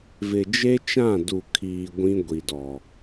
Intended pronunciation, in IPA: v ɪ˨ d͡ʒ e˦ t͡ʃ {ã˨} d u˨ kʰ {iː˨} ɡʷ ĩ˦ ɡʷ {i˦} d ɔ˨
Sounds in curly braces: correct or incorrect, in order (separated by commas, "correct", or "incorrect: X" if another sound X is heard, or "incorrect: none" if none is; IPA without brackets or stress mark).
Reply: incorrect: ã˦˨, correct, incorrect: i˨